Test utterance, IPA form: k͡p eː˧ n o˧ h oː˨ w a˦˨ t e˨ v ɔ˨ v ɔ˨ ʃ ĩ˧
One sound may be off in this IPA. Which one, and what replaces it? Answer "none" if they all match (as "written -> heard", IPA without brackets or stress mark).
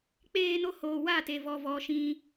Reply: none